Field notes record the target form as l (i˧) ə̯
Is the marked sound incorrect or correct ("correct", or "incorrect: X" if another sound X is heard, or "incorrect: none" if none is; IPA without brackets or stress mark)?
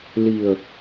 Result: incorrect: i˨˩